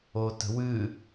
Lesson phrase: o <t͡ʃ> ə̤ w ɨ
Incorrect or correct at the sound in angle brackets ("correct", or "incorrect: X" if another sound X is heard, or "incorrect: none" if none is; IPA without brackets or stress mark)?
incorrect: t